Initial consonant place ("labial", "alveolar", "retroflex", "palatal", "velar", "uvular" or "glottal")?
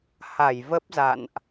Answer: glottal